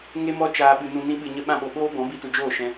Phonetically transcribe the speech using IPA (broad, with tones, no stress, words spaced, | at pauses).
ŋe˧mɔ˧ t͡ʃaː˧ɓɨ˧nũ˧ nĩ˦ɓɨ˧ɲə˦ ɓã˧ɓo˨ ɓoː˦bɔ̃˨˦ bi˧tu˨d͡ʒoː˦˨ʃɛ̃˧